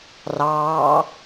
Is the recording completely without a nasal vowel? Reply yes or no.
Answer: yes